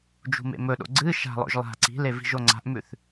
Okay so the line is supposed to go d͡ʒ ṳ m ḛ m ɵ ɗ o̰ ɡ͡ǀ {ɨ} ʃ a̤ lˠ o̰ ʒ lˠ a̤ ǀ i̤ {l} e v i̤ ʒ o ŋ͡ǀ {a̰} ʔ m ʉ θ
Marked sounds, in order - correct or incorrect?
correct, correct, incorrect: a̤

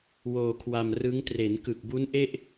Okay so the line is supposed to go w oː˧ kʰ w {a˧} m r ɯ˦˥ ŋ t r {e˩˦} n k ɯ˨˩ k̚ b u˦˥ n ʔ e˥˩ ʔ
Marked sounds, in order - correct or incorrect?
correct, correct

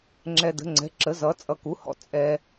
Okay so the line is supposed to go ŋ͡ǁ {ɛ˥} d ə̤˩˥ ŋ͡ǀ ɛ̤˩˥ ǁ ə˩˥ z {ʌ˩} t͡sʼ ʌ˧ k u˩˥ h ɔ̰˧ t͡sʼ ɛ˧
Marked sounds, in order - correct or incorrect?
incorrect: ɛ˧, incorrect: ʌ˩˥

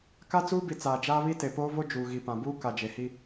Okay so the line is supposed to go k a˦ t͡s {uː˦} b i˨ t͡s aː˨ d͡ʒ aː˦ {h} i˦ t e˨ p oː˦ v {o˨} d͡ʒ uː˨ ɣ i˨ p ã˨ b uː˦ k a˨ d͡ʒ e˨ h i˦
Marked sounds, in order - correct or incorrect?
correct, incorrect: β, incorrect: o˦

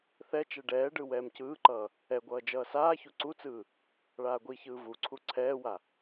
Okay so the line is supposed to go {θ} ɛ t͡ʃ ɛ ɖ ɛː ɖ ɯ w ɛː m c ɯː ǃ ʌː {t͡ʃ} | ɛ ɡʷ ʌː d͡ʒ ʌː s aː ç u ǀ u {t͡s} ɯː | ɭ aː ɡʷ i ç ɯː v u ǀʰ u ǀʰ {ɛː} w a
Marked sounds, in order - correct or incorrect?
correct, incorrect: none, correct, correct

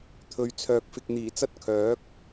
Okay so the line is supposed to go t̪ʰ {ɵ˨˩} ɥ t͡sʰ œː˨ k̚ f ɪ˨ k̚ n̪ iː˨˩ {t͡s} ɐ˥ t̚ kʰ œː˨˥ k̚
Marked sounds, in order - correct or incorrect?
incorrect: ɵ˨, correct

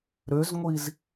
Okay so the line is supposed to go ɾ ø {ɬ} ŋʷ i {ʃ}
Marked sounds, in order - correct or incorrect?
incorrect: z, incorrect: z

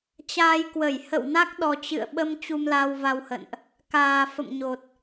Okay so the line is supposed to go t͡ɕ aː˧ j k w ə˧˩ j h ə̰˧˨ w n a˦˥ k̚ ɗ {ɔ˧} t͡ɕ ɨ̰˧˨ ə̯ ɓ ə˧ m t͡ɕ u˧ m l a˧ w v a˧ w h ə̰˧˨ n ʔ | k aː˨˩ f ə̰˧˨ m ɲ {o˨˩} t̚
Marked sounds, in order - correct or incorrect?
incorrect: ɔ˨˩, correct

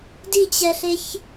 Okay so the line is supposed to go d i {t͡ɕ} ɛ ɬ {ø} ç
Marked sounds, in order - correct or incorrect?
correct, incorrect: e

